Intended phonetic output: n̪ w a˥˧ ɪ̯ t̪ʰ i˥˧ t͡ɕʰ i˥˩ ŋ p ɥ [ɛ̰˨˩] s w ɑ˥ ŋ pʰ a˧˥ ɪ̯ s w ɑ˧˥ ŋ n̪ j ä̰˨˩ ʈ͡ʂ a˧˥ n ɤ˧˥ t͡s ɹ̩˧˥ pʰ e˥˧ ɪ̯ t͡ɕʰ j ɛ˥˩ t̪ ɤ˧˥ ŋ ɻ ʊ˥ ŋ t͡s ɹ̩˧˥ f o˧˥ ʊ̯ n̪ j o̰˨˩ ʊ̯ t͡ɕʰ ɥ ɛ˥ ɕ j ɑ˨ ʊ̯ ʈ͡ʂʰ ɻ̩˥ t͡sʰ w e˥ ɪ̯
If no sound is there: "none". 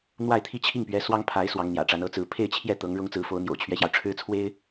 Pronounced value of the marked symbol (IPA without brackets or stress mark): ɛ˧˥